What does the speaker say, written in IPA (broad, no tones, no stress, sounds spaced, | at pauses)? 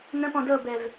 n ə̃ p ɔ̃ d ɤ b ɛ v